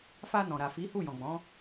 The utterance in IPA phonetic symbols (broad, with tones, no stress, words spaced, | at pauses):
fa˧ nɔ̃˨ɾa˨fi˨˦ hu˦˨jɔ̃˨ɡ͡bɔ̃˨˦